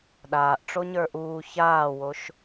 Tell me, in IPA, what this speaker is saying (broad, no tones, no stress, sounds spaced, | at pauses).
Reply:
ɗ aː ʔ ʈ͡ʂ o ɲ ə˞ ʔ uː ç aː w o ʃ